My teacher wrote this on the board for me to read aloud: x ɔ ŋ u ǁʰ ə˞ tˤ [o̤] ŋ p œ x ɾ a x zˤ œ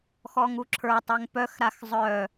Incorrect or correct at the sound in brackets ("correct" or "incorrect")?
incorrect